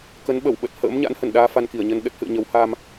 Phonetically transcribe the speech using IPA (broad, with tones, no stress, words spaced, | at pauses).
kə˨˦nɓə˧˩wɓə˨˩t̚ hə̰ː˧˥m ɲa̰˧˥nhə˧˩nɗaː˧ fa˧nki˧˩ə̯ɲə˧n ɗə˦˥t̚hɨ̰˧˨ə̯ ɲə˨˦whaː˧m